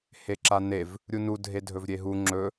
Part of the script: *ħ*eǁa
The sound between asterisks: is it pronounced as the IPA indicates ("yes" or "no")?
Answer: no